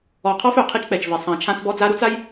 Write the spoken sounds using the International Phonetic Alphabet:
ɔ˨ qʰ ɔ˦ f œ˨ qʰ i˦ t͡ʃ k͡p ɛ˨ t͡ʃ v e˨ sˤ ã˨ t͡ʃʰ ã˦ t͡s b ɔ˦ d͡z a˦ ɾ u˦ t͡s a˦ j

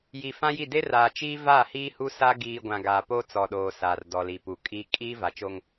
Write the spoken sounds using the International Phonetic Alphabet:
j i˨ f ã˦ j i˦˨ d e˦ r aː˨ t͡ʃ iː˦ v aː˦˨ h iː˦ h u˦ s a˦ ɡ iː˨ ɡʷ ã˨ ɡ aː˨ p o˦ t͡s ɔ˨ ɗ oː˨ s aː˨ r d ɔ˨ l iː˨ p u˨ kʼ iː˦ kʼ iː˦ v a˨ t͡ʃ o˦ ŋ

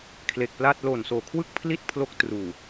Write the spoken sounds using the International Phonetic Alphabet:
kʰ l e˨˩ k̚ p l aː˥˩ t̚ l oː˨˩ n s oː˨˩ kʰ w ɯ˥˩ k̚ pʰ l i˥˩ t̚ pʰ l o˦˥ k̚ t r uː˨˩

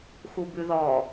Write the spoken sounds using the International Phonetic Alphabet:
x u b ʉ ð ɔ

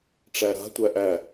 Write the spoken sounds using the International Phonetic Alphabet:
ʈ͡ʂ æ ɾ a̤ tʷ æ ʔ æ

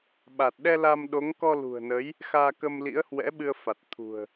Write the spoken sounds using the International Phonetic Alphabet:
ɓ a˨˩ t̚ ɗ ɛ˧ l a˧ m ɗ o˨˦ ŋ k ɔ˧ l ṳ˨˩ ə̯ n ə˨˦ j | x aː˧ k ə˧ m l ḭ˧˥ ə̯ h w ɛ̰˧˥ ɓ ɨ˧ ə̯ f a˨˩ t̚ t̪ʰ ṳ˨˩ ə̯

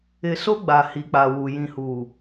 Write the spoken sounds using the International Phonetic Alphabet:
ɪ˨ s o˦ ɡ͡b a˨ h i˨ k͡p a˨ w u˨ j ĩ˨ h u˨

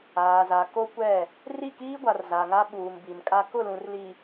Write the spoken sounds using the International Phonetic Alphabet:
aː˨ z a˨ k o˦ kʷ ɛ˦˨ | r i˦˨ k iː˦ ɡʷ a˨ r z a˨ ŋ a˦ ɓ uː˨ m b i˨ m kʼ a˦ k ʊ˦˨ l ũ˨ r l i˨

